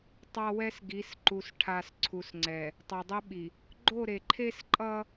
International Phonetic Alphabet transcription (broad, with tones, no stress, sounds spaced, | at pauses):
tˤ a˦ w ɛ˦ s ɡ i˨˦ s ǃ u˨ s ʈʰ a˨ s ǀʰ u˨ s ŋ͡ǀ ɛ˨ | tˤ o˨ dˤ e˦ ɓ i˨ | ɡ͡ǃ o˦˨ ɾ e˨ ǃʰ e˦ s ǃʼ ʌ˦